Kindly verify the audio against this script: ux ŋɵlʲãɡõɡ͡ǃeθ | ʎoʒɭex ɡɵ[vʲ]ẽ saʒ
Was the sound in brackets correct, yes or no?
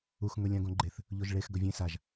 yes